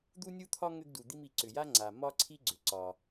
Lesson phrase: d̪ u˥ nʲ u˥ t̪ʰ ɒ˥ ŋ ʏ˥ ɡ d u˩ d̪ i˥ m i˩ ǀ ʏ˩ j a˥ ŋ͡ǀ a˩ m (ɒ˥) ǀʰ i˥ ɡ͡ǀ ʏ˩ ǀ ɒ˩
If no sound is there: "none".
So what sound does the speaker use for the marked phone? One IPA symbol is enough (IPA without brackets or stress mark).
ɒ˥